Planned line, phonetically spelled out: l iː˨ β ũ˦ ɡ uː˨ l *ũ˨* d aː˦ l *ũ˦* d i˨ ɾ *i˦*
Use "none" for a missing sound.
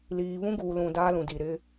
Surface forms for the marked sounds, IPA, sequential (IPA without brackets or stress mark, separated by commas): ũ˨, ũ˨, ɪ˦